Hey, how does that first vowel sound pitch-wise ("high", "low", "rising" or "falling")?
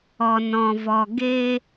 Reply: low